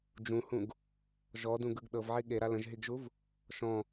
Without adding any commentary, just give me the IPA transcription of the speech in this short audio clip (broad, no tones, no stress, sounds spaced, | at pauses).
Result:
d͡ʒ ũ h ũ ɡ | ʒ ɔ d ũ ɡ ɯ ɡ ɗ ɤ v ʕ i ɠ e ɾ a l ə̃ ʒ ɦ i ɡ ʒ u v | ʃ ɔ̃